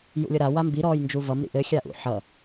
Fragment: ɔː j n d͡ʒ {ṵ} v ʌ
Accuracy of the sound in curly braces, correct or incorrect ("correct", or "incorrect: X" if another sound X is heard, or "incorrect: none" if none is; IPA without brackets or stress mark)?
incorrect: u